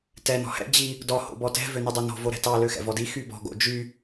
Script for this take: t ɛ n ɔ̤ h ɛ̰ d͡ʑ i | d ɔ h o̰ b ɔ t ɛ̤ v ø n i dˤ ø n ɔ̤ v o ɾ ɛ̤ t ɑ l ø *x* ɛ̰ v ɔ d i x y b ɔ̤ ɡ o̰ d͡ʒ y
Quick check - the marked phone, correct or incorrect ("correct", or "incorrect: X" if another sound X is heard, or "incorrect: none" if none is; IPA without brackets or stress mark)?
correct